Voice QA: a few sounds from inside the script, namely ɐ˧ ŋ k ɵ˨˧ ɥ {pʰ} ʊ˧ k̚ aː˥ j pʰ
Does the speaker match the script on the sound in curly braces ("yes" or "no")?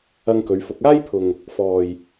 no